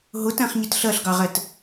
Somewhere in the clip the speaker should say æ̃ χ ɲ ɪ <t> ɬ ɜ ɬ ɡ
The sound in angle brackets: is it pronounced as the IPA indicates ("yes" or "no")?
yes